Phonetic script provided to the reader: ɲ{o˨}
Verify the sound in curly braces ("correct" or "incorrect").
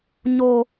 correct